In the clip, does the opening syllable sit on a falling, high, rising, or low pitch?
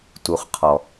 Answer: low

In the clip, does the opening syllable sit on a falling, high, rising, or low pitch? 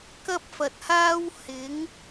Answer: high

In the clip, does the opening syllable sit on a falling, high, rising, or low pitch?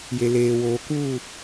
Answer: low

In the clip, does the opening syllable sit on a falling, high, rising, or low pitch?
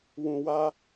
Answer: low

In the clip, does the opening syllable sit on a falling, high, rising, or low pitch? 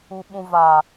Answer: low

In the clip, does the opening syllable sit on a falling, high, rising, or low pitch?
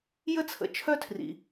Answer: high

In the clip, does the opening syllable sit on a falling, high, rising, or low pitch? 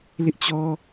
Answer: high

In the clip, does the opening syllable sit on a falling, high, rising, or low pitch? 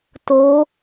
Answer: rising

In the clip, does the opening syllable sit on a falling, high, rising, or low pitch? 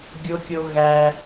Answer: high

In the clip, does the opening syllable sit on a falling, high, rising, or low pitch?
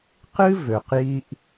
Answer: high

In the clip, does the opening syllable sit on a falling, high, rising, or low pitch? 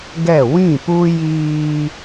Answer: falling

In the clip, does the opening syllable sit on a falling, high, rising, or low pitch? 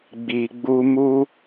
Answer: low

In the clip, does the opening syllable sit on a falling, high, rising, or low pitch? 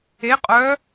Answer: rising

